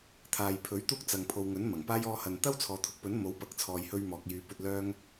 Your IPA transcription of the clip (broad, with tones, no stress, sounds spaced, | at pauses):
t̪ʰ aː˨ j pʰ ɵ˨˥ ɥ t̪ uː˥ k̚ t͡s ɐ˨ ŋ pʰ o˨ w ŋ ɵ˨˥ n m ɐ˨˩ ŋ p aː˥ j ɔː˧ h ɐ˨ n t̪ ɐ˥ w t͡sʰ ɔː˨ t̪ʰ ʊ˨˥ k̚ p ɵ˨˥ n m o˨˥ w p ɐ˨ k̚ t͡sʰ ɔː˨ j h ɵ˧ ɥ m ɔː˨ k̚ j yː˨˧ p ɵ˧ t̚ l œː˥ ŋ